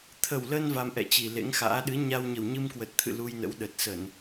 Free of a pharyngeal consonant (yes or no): yes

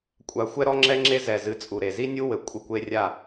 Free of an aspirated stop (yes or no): yes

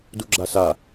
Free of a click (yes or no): no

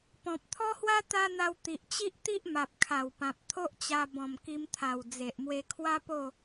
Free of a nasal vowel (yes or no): no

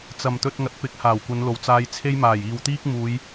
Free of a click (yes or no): yes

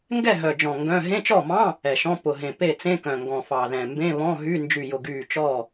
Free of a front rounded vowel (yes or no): no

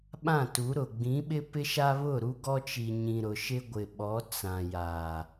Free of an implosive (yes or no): no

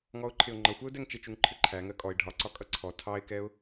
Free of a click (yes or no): no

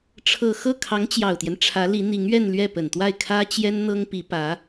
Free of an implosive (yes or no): yes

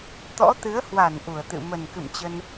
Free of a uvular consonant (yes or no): yes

